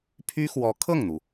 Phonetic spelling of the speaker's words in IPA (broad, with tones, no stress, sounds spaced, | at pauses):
pʰ y˥ x w ɔ˧˥ kʰ ɤ˥˩ ŋ n̪ u˩